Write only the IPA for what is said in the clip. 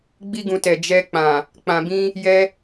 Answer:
ɡ͡bi˦ɡũ˧tɛ˨ d͡ʒɛ˧k͡pã˨ | k͡pã˧bĩ˦ | jɛ˦

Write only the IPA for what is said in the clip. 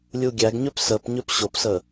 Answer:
lʲuɡʲæɡɲøp səp ɲøpɕopsə

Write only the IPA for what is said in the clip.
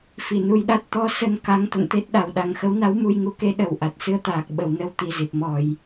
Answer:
fi˧˩nu˧jɗa˦˥t̚ t̪ɔ˧sə˧n ka˨˦ŋt̪ə̰˧˨nt̪e˦˥t̚ ɗa˨˩wɗa˨˩ŋ xə˨˦wna˨˦w mu˧jŋu˨˦ke˨˦ ɗə˨˩wʔa˨˩t̚ sɨ˧ə̯t̪aː˨˩k̚ ɓə˨˩wnə˧w t̪i˨˩zi˨˩p̚ mɔ˧˩˨j

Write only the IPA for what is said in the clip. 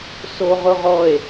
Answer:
soʁʊʁɔe̯

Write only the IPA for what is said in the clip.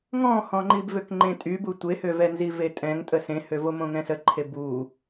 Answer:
ŋɔ̃hɔ̃ŋ͡ǃib vøkŋ͡ǃẽtʼybu tʷehøvɛnzi vetʼɛ̃ŋtʼə sẽhøvo mõŋɛ̃səǃʰe bu

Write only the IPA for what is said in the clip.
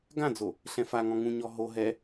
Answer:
ɡãd͡zo | ɬɛ̃faŋɔ̃ ŋũɲɔ ɦo ɦɛ

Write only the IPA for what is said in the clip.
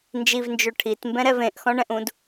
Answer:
nd͡ʒivnd͡ʒø ʈʰitmbɛ̃ɾɛv ẽʔxɔ̃ɳɛ̃ʔũd

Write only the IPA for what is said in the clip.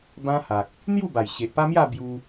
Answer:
bã˦ha˨k̚ | n̪ju˥˧ba˨˩j ɕe˨ʔpa˦mja˥˧ bju˧

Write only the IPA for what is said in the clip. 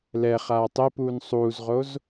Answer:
lɛ χaːtˤepuːn sˤuːzʁoz

